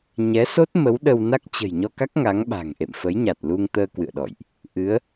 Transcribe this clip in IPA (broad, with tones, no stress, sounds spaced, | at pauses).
ɲ ɛ˨˦ s o˦˥ t̚ m ə˨˦ w ɗ ə˧ w n a˦˥ k̚ t͡ɕ ə̤˨˩ j ɲ ɔ˧ k a˦˥ k̚ ŋ a˨˦ ŋ ɓ a̤˨˩ ŋ ʔ ḛ˧˨ m f ə˨˦ j ɲ a˨˩ t̚ l u˧ ŋ t̪ əː˧ k w ɨ̰˧˨ ə̯ ɗ ɔ̰˧˨ j ʔ | ʔ ɨ˨˦ ə̯